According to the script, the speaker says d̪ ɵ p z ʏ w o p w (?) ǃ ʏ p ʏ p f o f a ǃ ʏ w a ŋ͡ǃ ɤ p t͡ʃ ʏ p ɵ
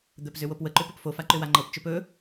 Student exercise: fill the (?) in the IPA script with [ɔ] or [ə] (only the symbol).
ə